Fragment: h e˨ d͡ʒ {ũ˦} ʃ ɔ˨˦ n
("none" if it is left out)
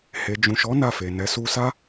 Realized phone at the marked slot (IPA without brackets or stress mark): ũ˨